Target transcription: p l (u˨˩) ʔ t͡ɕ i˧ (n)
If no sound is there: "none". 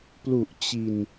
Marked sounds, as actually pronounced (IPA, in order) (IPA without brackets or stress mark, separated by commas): u˨˩, n